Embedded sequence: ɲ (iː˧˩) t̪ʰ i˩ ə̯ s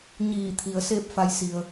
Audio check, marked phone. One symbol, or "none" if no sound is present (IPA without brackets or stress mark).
iː˧˩